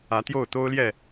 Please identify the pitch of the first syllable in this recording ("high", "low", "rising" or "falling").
rising